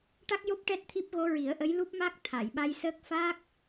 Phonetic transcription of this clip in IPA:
ʈa˦˥k̚jo˦˥p̚ ʈɛ˦˥t̚t̪ʰi˦˥p̚ ɣo˧˥ɹi˨˩˦ə̯ʔə˧˥j lu˦˥p̚ma˦˥k̚ t̪ʰa˨˩˨jɓa˧jsəː˦˥k̚ faː˦˥k̚

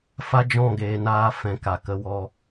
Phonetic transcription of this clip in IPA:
fa˦d͡ʒɔ̃˦˨ɡeː˨naː˧ fɛ̃˨ ka˨kə˧wɔ˧

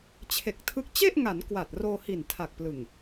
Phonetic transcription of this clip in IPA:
t͡ɕʰe˨˩k̚tʰɯ˦˥k̚ t͡ɕe˥˩ʔŋa˩˦n kwa˨˩t̚roː˧ hi˨˩ntʰa˨˩k̚plɯ˨˩ŋ

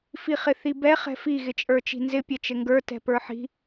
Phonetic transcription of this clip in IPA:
fiχɪθibɛ χɛ̤fi ɣɪt͡ʃʼə˞t͡ʃi̤nzɪ pʲɛt͡ʃɘŋɡə˞ tɛ̤pə˞ħi̤

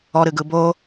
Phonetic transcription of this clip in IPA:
ɔɾɨɡɯ bo

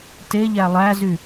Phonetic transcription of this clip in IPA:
teʎæ lˠæzy

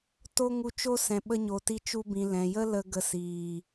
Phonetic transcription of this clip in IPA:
to˦ ŋu˧t͡ʃo˦sɛ̃˨ ɓə˧ ɲo˨ti˧ t͡ʃu˧bĩ˨ lɛ̃˨jə˦lə˧ ɡə˧siː˨

